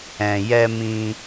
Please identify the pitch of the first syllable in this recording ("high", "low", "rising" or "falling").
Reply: low